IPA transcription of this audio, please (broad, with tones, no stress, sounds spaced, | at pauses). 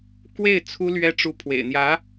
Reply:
k w e˥˩ ɪ̯ t͡sʰ u˥ l ɥ ɛ˥ ʈ͡ʂ u˥˩ pʰ w ḛ˨˩ ɪ̯ n̪ j ä˧˥